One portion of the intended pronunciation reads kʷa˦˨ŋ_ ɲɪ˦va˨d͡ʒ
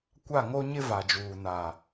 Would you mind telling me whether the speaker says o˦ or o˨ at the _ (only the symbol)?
o˦